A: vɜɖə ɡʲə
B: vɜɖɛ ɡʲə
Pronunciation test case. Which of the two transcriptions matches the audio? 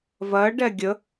B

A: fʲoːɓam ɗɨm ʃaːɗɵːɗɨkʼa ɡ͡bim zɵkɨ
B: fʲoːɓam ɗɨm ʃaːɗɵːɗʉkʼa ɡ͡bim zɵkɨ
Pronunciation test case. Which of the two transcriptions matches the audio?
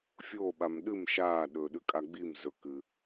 B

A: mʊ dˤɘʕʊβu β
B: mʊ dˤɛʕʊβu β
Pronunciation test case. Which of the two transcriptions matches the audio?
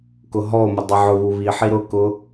B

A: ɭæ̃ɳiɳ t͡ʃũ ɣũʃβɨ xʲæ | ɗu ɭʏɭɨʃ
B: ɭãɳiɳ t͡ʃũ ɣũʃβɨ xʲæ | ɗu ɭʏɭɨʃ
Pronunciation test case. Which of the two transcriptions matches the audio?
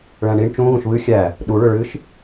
A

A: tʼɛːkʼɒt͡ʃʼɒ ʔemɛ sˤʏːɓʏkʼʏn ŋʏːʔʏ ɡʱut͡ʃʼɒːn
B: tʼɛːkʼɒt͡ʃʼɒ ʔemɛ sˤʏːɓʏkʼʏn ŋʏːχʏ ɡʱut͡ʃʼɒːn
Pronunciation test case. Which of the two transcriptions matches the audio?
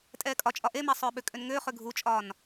B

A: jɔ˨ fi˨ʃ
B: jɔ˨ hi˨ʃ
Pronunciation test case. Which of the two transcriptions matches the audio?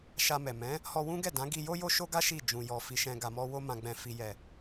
A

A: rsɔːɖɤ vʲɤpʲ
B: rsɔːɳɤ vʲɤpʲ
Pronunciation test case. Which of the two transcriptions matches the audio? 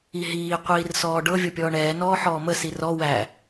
A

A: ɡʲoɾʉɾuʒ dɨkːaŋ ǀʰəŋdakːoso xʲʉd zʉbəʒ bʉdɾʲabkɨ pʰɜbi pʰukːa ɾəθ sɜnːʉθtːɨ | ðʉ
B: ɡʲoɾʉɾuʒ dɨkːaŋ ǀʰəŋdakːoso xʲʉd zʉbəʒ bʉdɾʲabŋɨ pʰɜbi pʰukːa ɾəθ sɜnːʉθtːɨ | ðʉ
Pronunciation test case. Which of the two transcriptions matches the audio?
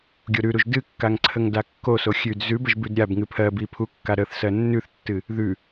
B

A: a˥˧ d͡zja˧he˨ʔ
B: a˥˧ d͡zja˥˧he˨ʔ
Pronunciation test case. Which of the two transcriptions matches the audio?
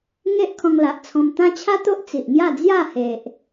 B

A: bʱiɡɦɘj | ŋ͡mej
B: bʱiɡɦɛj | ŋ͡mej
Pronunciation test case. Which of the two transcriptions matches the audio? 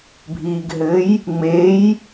A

